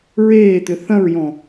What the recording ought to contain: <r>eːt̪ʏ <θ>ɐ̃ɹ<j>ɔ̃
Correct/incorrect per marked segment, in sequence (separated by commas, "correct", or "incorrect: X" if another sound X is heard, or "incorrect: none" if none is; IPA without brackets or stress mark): incorrect: ɹ, correct, correct